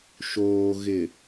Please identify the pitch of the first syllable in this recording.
low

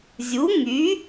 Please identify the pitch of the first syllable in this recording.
rising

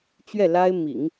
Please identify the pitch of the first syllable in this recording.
falling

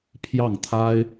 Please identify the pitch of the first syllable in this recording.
falling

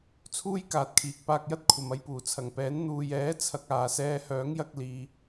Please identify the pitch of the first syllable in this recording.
high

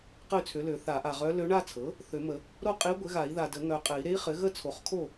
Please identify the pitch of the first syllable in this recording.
falling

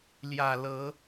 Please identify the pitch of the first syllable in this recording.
low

